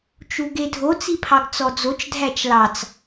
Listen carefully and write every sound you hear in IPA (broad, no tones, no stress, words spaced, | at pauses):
t͡ʃuɡedʱo t͡sipʰɑɡt͡sɔd͡zot͡ʃ dʱæt͡ʃlɑt͡s